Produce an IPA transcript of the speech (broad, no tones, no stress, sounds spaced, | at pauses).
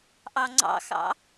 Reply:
ʔ ɑ ŋ͡ǀ ɑ̰ x ɑ̰